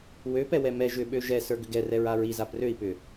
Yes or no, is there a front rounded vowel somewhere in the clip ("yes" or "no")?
yes